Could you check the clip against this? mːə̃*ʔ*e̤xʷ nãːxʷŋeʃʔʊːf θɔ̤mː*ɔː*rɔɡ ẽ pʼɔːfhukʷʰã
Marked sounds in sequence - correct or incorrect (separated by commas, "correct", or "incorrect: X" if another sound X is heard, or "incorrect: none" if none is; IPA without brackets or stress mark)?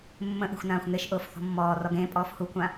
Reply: correct, correct